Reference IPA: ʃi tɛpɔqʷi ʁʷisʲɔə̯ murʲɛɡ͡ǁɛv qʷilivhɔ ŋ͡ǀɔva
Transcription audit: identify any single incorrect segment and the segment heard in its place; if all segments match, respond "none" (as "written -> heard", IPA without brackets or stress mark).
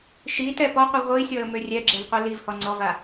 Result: u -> ø